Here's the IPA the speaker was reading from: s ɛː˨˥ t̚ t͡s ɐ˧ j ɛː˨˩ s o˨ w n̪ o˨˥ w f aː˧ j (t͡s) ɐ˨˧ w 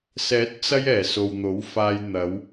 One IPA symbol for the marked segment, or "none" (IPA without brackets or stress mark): n̪